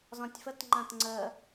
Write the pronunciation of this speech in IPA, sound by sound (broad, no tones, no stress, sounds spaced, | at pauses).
z ɔ̃ tʲ f ə t ŋ͡ǃ ã t ŋ͡ǀ ə